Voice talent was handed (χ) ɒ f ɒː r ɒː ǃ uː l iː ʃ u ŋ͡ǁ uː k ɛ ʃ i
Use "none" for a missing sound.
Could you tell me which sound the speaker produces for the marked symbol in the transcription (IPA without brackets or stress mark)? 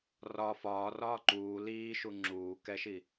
r